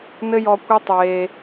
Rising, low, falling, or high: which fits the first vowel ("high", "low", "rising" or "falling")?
high